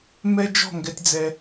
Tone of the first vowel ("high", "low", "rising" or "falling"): high